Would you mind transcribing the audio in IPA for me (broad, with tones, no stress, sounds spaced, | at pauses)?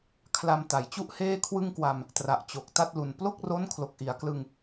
kʰ l a˧ m t a˨˩ j t͡ɕ u˥˩ ʔ h eː˥˩ kʰ w ɯ˥˩ ŋ k w a˧ m | t r a˨˩ ʔ t͡ɕ o˨˩ k̚ t a˥˩ t̚ l u˨˩ n p l o˥˩ k̚ r o˦˥ n kʰ l o˨˩ k̚ ʔ i˩˦ a̯ k l ɯ˧ ŋ